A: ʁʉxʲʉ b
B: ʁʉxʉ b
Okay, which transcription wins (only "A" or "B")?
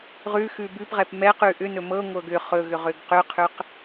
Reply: B